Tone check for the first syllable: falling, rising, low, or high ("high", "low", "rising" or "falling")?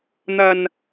low